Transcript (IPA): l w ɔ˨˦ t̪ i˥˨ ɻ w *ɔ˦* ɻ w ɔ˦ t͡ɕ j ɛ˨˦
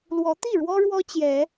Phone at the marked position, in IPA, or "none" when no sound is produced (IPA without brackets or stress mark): ɔ˦